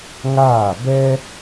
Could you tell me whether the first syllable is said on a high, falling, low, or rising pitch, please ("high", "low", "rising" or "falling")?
falling